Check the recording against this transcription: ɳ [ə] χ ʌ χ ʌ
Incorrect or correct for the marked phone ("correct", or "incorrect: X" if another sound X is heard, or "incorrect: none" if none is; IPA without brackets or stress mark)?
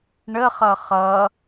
correct